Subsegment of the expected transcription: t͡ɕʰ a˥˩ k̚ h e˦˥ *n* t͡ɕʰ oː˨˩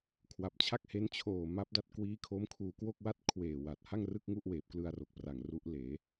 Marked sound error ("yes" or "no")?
no